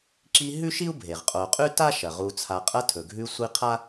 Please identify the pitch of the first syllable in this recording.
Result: high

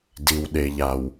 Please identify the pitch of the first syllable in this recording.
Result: low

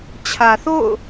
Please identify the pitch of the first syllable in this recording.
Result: low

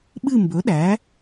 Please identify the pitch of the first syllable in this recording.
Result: falling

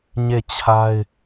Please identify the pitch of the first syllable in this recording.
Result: falling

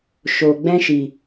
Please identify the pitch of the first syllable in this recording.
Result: low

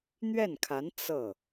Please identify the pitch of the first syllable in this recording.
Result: falling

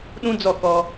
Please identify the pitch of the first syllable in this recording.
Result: high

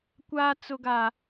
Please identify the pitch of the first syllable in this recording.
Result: high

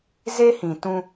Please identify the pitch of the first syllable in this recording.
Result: high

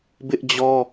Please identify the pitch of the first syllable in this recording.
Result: high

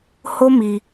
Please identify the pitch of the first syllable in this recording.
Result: high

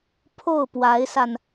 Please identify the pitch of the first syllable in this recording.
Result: falling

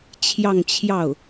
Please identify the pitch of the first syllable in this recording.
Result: falling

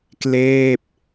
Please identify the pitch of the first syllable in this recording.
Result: falling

